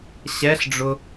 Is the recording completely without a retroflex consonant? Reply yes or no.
no